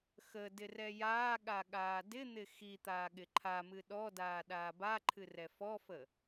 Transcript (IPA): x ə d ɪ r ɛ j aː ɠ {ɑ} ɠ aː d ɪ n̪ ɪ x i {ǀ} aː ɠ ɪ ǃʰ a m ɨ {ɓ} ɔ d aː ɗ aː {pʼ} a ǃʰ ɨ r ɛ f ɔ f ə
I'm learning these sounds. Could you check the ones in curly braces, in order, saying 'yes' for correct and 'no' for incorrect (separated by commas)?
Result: no, no, no, no